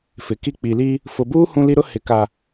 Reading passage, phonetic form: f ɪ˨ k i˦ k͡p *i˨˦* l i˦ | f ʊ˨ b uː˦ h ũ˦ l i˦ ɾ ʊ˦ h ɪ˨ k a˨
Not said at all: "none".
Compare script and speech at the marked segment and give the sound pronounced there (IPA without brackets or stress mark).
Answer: i˨